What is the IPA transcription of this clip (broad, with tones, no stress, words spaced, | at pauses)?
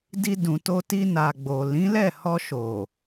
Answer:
di˧dũ˨to˧ti˧ na˨ɡ͡bo˨lĩ˨˦ lɛ˦˨hɔ˧ ʃo˨